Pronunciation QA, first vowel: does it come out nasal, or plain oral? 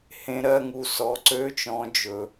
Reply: nasal